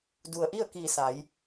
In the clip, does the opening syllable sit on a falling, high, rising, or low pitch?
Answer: low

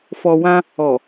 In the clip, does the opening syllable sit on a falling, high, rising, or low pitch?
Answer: low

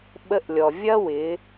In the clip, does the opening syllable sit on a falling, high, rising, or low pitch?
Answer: rising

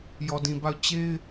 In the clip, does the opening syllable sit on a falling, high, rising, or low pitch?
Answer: low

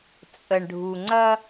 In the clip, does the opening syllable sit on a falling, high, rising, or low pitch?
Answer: low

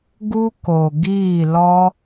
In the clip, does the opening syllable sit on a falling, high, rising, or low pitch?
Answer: high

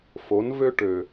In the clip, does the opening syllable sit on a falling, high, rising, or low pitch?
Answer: rising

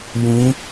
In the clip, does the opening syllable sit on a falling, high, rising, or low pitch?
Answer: rising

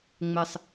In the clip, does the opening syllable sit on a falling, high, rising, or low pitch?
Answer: low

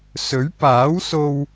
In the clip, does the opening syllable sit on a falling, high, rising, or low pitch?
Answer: rising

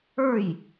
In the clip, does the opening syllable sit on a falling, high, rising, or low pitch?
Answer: falling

